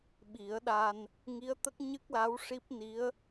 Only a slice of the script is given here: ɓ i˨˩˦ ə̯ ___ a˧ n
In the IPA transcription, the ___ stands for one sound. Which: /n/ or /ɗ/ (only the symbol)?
ɗ